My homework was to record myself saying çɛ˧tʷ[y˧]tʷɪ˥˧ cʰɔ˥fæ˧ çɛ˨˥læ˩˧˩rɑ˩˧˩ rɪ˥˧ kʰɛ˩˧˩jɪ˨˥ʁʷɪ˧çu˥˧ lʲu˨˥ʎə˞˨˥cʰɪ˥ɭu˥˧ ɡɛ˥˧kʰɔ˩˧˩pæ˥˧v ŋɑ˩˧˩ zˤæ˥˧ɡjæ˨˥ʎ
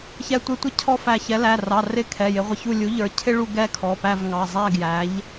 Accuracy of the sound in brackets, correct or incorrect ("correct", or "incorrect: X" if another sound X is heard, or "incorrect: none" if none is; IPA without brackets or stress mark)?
incorrect: ɪ˧